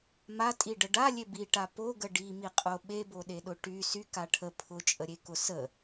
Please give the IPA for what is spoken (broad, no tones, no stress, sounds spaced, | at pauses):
m a tʼ i ɖ ə ɖ a lʲ e b i ʈ a p o ɡ ə ɖ i m i qʼ o ɓ e b o ɗ e ɗ ʊ ʈ y s y k a ʈʰ ə pʰ ʊ t͡ʃʼ ə ɾʲ e k ʊ s ə